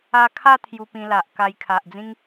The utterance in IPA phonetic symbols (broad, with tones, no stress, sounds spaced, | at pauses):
a˧ kʰ a˥˧ t̪ʰ j u˧ p ĩ˧ l a˨ ʔ k a˧ j kʰ a˨ ʔ d͡z ĩ˦ ŋ